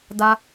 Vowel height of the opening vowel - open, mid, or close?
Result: open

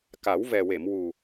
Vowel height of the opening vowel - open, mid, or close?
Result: open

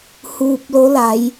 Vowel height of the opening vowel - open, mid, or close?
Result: close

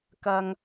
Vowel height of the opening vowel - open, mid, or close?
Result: open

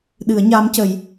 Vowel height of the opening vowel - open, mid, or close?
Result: close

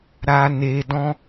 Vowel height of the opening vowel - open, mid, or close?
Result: open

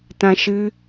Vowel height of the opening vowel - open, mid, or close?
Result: open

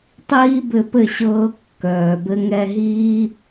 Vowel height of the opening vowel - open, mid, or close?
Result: close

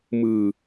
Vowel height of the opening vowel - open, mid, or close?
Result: close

